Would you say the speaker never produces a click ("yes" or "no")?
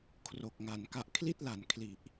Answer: yes